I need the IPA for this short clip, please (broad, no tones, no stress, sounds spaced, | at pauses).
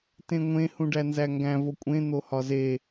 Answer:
t ẽ ŋʷ ẽ h ũ ɖ æ n z æ ŋ ɡ æ̃ v o kʷʼ ẽ n̪ o h ɒ z e